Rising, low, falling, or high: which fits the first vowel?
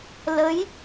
rising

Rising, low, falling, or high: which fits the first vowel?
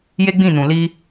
high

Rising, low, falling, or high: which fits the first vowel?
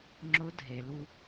rising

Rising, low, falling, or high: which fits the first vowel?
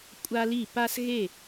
high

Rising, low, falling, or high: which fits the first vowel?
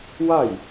falling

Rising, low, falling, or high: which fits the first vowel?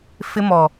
high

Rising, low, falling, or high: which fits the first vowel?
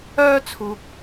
high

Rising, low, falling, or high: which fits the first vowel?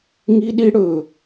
high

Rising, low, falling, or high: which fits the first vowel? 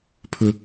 high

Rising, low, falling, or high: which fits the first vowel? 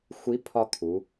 rising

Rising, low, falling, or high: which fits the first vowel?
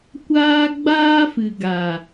high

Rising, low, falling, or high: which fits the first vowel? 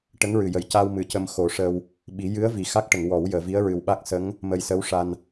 rising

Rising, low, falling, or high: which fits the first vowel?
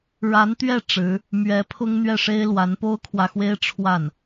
rising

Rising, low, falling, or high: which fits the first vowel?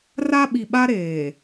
high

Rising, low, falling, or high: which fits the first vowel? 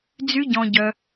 high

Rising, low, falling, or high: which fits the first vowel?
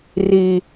low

